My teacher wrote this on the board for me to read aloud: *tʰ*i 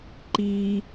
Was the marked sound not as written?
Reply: yes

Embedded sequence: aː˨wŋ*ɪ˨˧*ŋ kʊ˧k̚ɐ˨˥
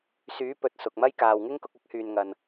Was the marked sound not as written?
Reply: yes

